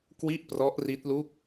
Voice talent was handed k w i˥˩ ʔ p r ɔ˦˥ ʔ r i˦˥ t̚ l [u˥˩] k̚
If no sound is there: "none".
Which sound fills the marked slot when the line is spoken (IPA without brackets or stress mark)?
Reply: u˥˩